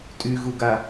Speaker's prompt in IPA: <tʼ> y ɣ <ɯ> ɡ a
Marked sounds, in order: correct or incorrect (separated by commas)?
correct, incorrect